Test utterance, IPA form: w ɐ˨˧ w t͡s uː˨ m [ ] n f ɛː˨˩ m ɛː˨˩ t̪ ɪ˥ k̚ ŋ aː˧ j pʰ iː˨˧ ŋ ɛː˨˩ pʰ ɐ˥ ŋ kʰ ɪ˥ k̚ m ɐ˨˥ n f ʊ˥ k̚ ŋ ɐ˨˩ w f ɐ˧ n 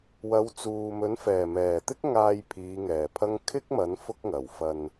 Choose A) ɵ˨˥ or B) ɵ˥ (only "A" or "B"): A